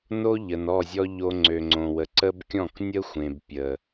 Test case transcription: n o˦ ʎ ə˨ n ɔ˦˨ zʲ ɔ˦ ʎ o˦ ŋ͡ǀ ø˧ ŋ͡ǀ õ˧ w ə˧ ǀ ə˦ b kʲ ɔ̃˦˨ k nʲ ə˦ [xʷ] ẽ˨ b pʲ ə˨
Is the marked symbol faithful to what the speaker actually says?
yes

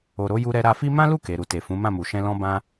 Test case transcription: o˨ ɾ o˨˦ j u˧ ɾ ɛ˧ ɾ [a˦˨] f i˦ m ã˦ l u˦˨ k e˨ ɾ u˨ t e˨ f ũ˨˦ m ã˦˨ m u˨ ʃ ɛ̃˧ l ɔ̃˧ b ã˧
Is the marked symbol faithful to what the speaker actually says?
no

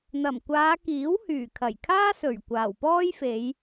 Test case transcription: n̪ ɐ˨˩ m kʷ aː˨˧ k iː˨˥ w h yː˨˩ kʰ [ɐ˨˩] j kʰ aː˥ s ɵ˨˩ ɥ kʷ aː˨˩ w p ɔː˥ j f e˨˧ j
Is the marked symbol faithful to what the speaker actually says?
yes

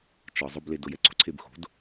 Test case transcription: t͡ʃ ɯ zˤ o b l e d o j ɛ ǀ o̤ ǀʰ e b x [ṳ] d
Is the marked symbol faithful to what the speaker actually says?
no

